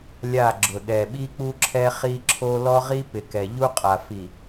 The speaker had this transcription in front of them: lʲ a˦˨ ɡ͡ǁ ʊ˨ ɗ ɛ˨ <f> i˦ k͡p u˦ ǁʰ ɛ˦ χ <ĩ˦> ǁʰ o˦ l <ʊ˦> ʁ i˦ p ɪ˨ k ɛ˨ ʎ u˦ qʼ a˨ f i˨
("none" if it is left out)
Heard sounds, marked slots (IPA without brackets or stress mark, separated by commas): ɓ, i˦, ɔ˦